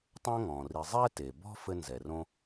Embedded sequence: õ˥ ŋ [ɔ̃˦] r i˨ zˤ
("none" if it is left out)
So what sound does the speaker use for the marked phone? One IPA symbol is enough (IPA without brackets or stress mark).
ɔ̃˩